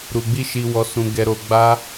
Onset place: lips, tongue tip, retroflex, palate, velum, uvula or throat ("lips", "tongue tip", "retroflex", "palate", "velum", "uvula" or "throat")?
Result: tongue tip